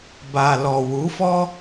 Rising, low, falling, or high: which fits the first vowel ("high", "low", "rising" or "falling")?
low